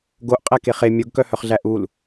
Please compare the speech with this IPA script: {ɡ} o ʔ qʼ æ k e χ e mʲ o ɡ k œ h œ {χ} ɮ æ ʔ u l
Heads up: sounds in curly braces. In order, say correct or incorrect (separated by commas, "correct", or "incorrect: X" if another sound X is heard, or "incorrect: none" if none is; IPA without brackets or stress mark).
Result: correct, correct